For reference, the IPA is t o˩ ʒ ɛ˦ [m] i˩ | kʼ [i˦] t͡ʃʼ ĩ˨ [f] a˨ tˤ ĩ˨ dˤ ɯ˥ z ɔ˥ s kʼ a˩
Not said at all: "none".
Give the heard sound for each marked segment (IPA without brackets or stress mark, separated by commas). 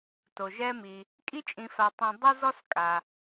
m, i˦, f